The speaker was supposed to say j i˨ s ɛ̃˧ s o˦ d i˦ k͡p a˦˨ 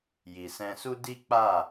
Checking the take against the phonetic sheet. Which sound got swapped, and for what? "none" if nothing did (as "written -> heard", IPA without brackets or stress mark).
o˦ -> u˦